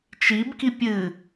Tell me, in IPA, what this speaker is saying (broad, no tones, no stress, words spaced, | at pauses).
t͡ʃibki pʲɨ